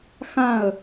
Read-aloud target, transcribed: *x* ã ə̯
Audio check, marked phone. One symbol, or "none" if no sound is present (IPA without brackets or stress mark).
x